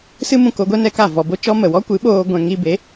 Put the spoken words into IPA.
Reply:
s ɨ˦ m ũ˧ k o˧ ɡʷ ɛ˦ n ɛ˧ k a˦˨ v ɔ˧ b o˦ t͡ʃ ɔ˦ m ə˨ w ɔ˦ kʷ ɨ˨˦ ɓ oː˧ ɡʷ ɛ̃˧ ŋ i˧ b e˨˦

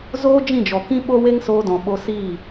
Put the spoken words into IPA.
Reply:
z oː˦ d͡ʒ ĩ˦˨ d͡ʒ ɔ˨ k ĩ˧ ɓ o˦ w e˦ ŋ s oː˧ d ɔ̃˨ ɓ o˧ s iː˦˨

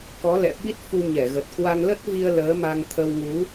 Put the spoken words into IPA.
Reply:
k ɔ˨˦ l ɛ̰˧˨ ɓ i˦˥ t̚ f u˧ ɲ ɛ˧˩ ɣ ə˨˩ t̚ k w a˧ ŋ l ə˦˥ t̚ v i˧ ə̯ l əː˨˦ m a˧ ŋ t̪ʰ ə˧ w ŋ u˨˦

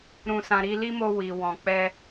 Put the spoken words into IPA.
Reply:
ɾ ũ˨ s ã˨ ɾ i˧ l i˦ m o˧ w i˨ w ɔ̃˨ k͡p ɛ˧

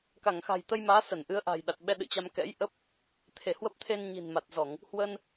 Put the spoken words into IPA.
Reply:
k a˧˩ ŋ x a̤˨˩ j t̪ ə˧ j m aː˨˦ s ə˧˩ n ʔ ɨ˨˦ ə̯ ʔ a̤˨˩ j ɗ a˨˩ t̚ ɓ ɛ˧ ɗ ɨ̰˧˨ t͡ɕ a˧ m k ɛ̰˧˥ j ʔ ə˦˥ p̚ | t̪ʰ e˧˩ h w ə˦˥ p̚ t̪ʰ e˧ n ɲ i̤˨˩ n m a˨˩ t̚ z ɔ˧˩˨ ŋ | h w ə˧ n

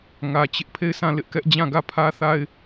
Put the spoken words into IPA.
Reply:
ŋ ä˨ t͡ɕ ɪ˦ ʔ pʰ e˦˨ ɪ̯ s ã˦˨ l ɪ˦ ʔ k ɛ˦ ʔ d͡ʑ ã˦˨ ɡ ä˦˨ pʰ ä˦ θ a˦ ɪ̯

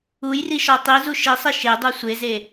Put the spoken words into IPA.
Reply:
u j r i ʃ ɒ tˤ i z u ʃ i sˤ i ʃ e dˤ u sʷ e z e

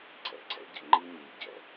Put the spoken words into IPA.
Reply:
ǀʰ ɛ̰˨ ǀʰ ɛ̰˦ ɟ ə̰˨ ŋ͡ǃ i˦ ɲ i˨ ɟ ɛ̰˨

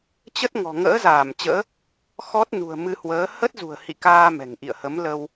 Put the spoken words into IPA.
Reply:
t͡ɕ ə˦˥ t̚ ŋ ɔ̤˨˩ ŋ ə̰ː˧˥ z aː˧˩ m t͡ɕ ə̰ː˧˥ | x ɔ˦˥ t̚ n ṳ˨˩ ə̯ m ɨ˧ h w əː˨˦ h ə˦˥ t̚ z ṳ˨˩ ə̯ h ḭ˧˨ k aː˧ m ɛ̤˨˩ ŋ ʔ ḭ˧˨ ə̯ h ə˨˦ m l ə˧ w

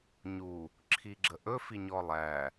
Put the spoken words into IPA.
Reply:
ɲ u | ǁʰ i ɡ͡ǁ ə ʔ ɵ f i ɲ ɔ lˠ æ

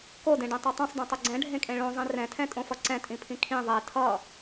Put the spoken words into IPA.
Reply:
k o d ẽ ɖ ẽ tˤ e tˤ õ sˤ d ẽ tˤ ɯ ɡ͡ǀ ɛ̃ ɖʱ ẽ kʼ ẽ ɭ õ zˤ ĩ r ɛ̃ tʰ ɛ̃ tʼ õ f ʌ ǀ ɛ̃ tʼ ĩ pʰ ĩ kʰ ĩ ðˤ e tʰ ʌ

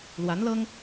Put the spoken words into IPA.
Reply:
l w a˧˥ n l ɤ˥ ŋ

